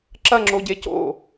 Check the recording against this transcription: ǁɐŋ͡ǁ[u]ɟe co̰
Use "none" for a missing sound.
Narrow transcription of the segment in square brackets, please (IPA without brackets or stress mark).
o